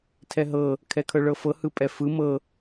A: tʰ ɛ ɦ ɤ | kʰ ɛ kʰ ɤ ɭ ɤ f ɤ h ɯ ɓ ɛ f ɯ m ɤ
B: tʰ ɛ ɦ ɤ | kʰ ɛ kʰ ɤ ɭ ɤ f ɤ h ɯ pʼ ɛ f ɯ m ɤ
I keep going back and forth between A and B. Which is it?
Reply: B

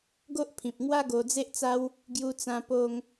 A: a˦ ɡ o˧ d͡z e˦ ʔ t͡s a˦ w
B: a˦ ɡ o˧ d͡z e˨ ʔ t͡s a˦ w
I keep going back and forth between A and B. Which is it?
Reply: A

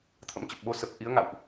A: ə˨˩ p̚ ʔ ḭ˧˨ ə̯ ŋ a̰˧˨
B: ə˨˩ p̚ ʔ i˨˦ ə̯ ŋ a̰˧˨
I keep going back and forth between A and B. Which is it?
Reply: B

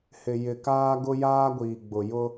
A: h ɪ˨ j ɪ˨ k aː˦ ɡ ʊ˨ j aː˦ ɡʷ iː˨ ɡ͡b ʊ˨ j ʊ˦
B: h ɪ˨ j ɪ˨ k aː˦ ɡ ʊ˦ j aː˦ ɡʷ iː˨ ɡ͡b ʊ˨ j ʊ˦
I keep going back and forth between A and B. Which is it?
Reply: B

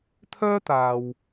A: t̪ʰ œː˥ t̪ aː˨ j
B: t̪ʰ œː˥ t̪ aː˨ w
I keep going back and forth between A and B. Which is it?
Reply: B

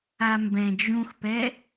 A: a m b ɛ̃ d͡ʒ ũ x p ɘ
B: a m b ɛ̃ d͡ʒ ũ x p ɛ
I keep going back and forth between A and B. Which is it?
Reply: B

